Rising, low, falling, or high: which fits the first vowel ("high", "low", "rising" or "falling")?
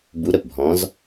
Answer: rising